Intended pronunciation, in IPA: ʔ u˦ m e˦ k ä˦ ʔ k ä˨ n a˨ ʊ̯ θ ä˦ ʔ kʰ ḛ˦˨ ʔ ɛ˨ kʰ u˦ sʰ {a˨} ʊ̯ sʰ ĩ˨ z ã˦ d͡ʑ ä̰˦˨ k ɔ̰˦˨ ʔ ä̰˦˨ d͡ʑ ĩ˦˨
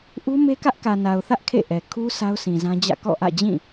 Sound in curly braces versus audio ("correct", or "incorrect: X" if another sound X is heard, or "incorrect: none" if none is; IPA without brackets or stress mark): incorrect: a˦